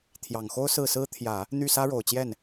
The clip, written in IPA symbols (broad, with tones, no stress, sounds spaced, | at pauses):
t̪ʰ j ɑ˨˩ ŋ x o˥ ʊ̯ s ɹ̩˥˩ s ɹ̩˥ t̪ʰ j ä˨˩˦ | n̪ y˥˩ s ä˥ ɻ o˨˩ ʊ̯ t͡ɕ j ɛ˥˩ n